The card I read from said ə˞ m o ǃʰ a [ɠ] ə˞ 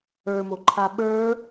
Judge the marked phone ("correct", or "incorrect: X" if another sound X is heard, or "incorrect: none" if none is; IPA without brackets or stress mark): incorrect: ɓ